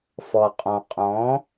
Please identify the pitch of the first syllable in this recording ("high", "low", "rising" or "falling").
low